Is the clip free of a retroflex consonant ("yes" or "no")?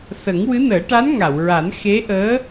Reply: no